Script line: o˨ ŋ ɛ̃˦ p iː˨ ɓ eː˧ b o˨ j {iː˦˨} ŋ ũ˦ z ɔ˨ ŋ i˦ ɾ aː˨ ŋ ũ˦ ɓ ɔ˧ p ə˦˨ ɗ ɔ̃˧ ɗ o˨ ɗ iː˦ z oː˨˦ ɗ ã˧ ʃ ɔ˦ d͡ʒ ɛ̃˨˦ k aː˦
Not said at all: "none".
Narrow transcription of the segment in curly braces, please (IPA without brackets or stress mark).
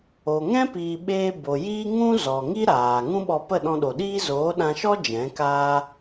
iː˦